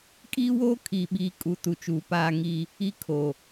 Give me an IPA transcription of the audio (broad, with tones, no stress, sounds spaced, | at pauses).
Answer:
kʼ iː˦ w oː˦ kʰ iː˨ ɓ iː˨ kʼ u˨˦ t u˨ t͡ʃ uː˨ p aː˦ ŋ i˦ | i˦ kʰ o˨